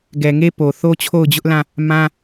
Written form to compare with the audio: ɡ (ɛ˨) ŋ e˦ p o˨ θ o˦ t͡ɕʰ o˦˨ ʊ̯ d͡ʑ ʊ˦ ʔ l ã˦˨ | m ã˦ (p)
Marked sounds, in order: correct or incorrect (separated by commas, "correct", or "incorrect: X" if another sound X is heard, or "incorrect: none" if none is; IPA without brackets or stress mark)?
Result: correct, incorrect: none